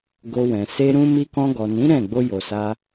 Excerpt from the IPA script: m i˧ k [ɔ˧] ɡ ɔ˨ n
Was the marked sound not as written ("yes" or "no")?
yes